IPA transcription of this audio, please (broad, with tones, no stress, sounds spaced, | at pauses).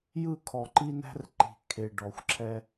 j ɯ˦˨ kʰ ɔ˨ ǃ i˦ n æ̤˦ r ǃ i̤˨ kʰ e˨ ɖ ɔ˨ xʷ ǁʰ ɛ˦